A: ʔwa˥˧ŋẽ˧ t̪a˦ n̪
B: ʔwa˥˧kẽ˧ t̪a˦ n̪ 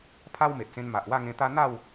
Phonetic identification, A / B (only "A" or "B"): A